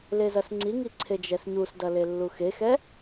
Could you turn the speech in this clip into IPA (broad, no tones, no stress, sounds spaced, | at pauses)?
l e z ɐ s ŋ͡ǀ i ŋ i ǀʰ e d͡ʒ ɛ s ɲ u s d ɐ l e lː u x e x ɛ